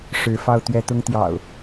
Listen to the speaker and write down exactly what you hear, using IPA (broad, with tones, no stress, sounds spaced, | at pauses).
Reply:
ʂ ɻ̩˨˦ f ɑ˥˨ ʊ̯ t̪ ɥ ɛ˦ t̪ ʊ˦ ŋ t̪ j ɑ̰˨˩ ʊ̯